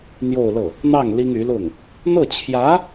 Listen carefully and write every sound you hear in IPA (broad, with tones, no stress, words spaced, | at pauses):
n̪jo˥˧ʊ̯lɤ˥˩ | n̪ɑ˥˩ŋ li˥ŋy˧˥lʊ˥˩ŋ | n̪ɤ˥˩t͡ɕʰjä˧˥